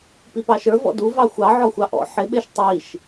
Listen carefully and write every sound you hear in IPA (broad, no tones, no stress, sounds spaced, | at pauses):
p i p ɑ ʃ ə˞ v ɔ̰ d u v ɑ xʷ ɑ ʕ ɔ xʷ ɑ ʔ ɔ̰ ħ ɪ ɓ ɪ ʃ tˤ i ʃ